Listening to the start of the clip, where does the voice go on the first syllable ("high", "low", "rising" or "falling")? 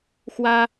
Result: high